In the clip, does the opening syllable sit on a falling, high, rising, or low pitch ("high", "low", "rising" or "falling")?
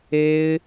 high